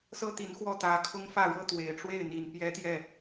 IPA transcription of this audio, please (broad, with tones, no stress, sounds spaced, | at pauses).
s ɤ˥ t̪ i˧˥ n x w ɔ˥˩ t̪ ä˧˥ kʰ ʊ˥ ŋ f ä˥˩ ɻ ɤ˥ t̪ w e˨˩ ɪ̯ ʈ͡ʂ w e˥˩ ɪ̯ n̪ i˨˩ n p j ɛ˥ t̪ j ɛ˥˩